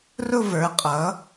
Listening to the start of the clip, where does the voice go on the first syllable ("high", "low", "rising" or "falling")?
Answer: falling